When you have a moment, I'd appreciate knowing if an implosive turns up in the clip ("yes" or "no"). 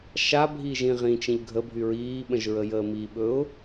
yes